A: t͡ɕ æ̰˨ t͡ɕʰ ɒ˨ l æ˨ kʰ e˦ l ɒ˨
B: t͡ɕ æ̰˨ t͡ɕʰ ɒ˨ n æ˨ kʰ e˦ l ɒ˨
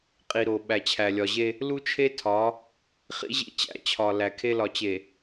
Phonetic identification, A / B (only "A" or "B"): A